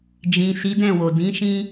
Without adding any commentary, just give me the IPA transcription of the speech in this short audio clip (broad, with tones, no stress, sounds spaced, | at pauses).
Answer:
d͡ʒ ĩ˨ s i˨˦ d ɛ̃˦˨ w o˨ d ĩ˨˦ ʃ ĩ˦